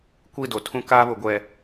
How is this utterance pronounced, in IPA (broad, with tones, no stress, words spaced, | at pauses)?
kʷi˦˨ do˨tʰũ˦ kaː˦βʊ˨ ɡʷɛ˨